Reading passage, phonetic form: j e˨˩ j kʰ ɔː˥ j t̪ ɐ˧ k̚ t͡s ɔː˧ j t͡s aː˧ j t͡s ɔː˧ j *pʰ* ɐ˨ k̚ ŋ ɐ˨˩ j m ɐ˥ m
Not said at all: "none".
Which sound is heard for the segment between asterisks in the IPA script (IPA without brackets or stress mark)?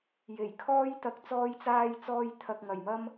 t̪ʰ